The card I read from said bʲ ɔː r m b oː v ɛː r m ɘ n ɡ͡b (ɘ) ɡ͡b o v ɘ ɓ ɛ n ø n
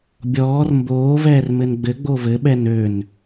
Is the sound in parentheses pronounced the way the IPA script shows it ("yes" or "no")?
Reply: yes